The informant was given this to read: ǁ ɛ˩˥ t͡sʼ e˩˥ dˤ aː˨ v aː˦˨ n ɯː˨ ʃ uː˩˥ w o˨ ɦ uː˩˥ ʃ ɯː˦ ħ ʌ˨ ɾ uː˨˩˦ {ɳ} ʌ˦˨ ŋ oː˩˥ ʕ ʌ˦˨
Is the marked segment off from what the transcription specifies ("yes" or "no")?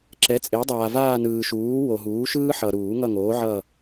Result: yes